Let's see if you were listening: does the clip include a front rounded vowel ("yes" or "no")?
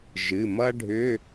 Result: yes